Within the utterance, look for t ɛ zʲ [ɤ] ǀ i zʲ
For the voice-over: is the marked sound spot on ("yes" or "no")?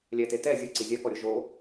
yes